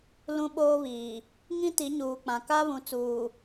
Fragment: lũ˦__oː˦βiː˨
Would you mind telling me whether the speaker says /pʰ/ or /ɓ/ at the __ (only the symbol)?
ɓ